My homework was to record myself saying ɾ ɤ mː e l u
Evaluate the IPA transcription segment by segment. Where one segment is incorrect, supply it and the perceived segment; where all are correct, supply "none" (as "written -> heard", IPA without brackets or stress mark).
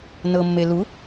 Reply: ɾ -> n